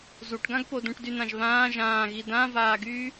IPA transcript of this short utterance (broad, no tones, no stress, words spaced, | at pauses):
zuʈɡãɡpo dũʈdynãʒβãː ʒãːɣi dãvaːɡyː